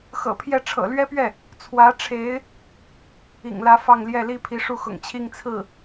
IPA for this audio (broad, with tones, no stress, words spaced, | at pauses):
xɤ̰˨˩pʰjɛ˥˩ ʈ͡ʂʰɤ̰˨˩lɥɛ˥pɥɛ˥˩ | t͡sʰwä˧˥ʈ͡ʂʰe˧˥ɪ̯ | ḭ˨˩ŋlä˧˥ fɑ˥˧ŋljɛ˥˩li˥ pʰi˧˥ʂu˥˩xʊ̰˨˩ŋt͡ɕʰi˥˧ŋ t͡sʰɹ̩˥˩